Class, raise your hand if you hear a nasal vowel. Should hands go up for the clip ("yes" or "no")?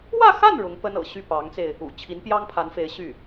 no